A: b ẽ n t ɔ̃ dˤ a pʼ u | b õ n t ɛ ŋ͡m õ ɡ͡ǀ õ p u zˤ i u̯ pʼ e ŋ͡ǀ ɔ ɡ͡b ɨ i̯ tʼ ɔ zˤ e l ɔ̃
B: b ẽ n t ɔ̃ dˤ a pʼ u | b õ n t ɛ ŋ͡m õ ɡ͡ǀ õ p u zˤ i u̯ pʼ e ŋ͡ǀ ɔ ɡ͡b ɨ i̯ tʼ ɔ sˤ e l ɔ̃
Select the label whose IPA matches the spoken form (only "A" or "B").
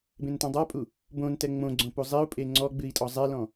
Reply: A